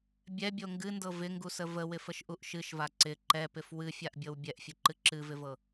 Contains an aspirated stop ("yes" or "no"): no